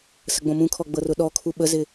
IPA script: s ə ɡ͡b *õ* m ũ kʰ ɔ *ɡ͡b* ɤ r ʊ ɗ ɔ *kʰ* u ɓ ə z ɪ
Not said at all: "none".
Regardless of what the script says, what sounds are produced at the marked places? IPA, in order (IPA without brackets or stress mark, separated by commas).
õ, ɡ͡b, kʰ